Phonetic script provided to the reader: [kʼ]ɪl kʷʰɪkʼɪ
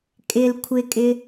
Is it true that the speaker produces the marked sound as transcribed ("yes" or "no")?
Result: yes